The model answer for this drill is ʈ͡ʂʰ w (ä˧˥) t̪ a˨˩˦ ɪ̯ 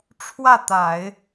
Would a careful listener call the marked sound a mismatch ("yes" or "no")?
yes